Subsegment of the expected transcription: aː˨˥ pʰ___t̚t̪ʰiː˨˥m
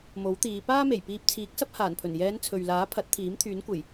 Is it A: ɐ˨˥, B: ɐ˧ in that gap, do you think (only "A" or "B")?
A